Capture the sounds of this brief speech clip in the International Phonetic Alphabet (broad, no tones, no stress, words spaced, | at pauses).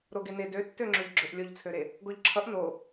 ɾoɡene døtːøŋ͡ǁʏʎɡ͡ǁøʔ lʲoʎt͡sʰøɾe | ɡoʎǁʰʌʔ no